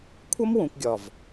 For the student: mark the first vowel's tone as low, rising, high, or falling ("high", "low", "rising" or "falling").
high